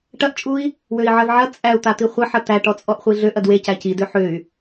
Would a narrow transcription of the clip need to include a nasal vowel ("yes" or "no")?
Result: no